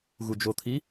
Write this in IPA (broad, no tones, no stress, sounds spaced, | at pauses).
ɣ u d͡ʒ o t̪ʰ i